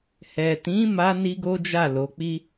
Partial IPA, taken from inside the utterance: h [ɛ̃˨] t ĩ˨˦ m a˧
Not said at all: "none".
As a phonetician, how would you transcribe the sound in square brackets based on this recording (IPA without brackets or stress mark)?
ɛ˨